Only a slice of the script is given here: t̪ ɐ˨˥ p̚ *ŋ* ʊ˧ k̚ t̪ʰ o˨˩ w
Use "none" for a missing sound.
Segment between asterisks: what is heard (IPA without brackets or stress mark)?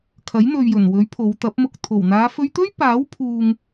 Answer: m